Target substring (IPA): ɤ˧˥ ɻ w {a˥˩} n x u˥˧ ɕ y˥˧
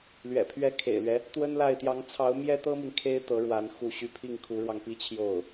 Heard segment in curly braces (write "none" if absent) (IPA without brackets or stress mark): a˧˥